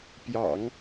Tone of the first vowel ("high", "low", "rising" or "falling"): low